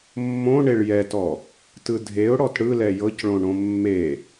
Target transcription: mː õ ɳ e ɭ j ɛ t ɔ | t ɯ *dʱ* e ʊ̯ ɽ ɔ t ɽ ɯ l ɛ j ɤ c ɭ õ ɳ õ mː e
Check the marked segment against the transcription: correct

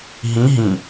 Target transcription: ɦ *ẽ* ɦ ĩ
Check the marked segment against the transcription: incorrect: ĩ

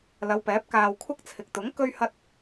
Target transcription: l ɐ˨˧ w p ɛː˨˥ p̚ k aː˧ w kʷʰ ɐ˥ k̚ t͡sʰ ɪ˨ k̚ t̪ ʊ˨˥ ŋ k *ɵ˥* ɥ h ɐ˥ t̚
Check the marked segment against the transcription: correct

